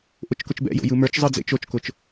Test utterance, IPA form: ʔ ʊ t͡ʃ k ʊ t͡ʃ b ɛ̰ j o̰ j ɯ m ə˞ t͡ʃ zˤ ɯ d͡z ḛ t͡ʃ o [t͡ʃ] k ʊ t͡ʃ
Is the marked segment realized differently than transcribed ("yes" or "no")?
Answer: no